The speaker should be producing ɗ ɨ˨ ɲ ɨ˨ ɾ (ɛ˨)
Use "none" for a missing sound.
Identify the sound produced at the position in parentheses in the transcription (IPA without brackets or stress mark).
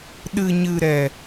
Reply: ɛ˨